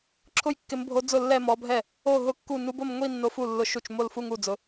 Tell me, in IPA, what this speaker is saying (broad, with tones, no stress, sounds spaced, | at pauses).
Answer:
ǁʰ ʊ˥˧ j kː ɪ˧˥ m bʱ o˧˥ d͡z ʊ˥˩ lː ɛ˥˧ m ɔ˧˥ bʱ ɛ˥˩ | o˥˩ ɦ ʊ˥˩ kː u˥˩ n u˧˥ b o˥˧ m ŋʷ i˥˧ nː o˧˥ f u˥˩ lː ʊ˧˥ ʃ u˥˩ t͡ʃ m o˥˩ l f u˥˧ ŋ u˥˩ d͡z ʊ˧˥